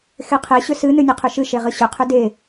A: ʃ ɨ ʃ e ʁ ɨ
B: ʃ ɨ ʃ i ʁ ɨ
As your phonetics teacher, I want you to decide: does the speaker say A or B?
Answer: A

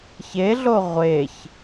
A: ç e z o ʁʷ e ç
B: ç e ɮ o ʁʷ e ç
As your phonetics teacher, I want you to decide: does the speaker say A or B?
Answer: B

